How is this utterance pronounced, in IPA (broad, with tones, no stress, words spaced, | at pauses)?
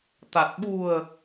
t̪a˨˩t̚ ɓṳ˨˩ə̯